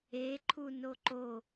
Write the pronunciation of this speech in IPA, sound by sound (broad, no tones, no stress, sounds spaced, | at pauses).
e ǃʰ u n o ǃ o